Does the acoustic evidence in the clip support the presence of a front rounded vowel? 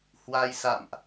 no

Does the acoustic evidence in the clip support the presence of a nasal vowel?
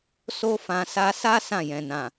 yes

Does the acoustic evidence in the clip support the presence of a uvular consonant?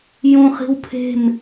yes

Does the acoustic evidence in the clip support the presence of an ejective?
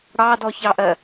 no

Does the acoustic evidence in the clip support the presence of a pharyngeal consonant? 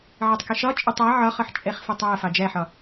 yes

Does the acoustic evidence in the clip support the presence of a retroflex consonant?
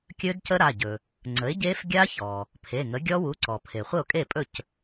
no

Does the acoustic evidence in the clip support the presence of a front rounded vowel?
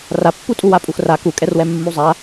no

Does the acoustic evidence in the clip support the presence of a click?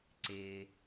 yes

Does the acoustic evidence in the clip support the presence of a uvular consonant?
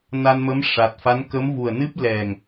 no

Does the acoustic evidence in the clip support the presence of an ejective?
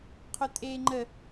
yes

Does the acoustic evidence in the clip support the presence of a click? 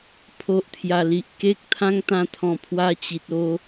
no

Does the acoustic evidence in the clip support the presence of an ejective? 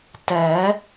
no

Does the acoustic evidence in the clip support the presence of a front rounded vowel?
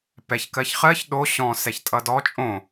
no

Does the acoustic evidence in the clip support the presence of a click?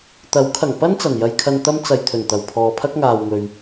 no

